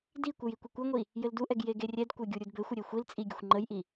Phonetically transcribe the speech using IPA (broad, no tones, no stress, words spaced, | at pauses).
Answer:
dikʷɘj ikʷikʷɛŋʷi | jɘlduʔɛɡ jeɡerʲɛdkʷɛ ɡʲuɾʲudbɘxʷə ɾʲexʷilt͡sʼi ɡʲɘxʷŋ͡ǃəjʔi